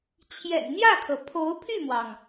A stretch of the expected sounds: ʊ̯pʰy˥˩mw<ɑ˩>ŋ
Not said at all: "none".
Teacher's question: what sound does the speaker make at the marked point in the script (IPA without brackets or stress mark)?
ɑ˩